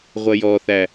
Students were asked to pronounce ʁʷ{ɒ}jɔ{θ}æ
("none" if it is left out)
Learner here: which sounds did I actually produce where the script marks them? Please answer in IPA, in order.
ʌ, θ

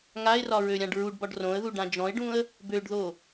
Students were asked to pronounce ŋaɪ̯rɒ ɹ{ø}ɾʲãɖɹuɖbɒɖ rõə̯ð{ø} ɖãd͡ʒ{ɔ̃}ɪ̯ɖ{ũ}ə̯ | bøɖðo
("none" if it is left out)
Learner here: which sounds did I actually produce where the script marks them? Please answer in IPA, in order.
ø, u, ɔ̃, ũ

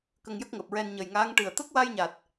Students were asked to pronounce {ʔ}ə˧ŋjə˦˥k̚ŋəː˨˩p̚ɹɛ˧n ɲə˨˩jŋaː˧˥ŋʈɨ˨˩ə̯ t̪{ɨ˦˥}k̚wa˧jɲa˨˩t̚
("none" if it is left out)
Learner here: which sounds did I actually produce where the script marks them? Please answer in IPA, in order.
k, ə˦˥

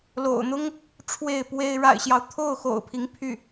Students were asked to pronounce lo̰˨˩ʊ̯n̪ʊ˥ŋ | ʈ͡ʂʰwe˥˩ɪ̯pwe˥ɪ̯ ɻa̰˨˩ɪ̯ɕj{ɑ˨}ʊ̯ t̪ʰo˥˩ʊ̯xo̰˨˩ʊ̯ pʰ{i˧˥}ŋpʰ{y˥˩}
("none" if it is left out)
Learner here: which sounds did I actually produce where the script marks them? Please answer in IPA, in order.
ɑ˦, i˧˥, y˥˩

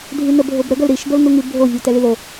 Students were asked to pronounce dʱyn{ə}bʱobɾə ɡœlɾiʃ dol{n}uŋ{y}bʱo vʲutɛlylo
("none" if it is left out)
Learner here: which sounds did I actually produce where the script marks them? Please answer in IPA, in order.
ə, n, y

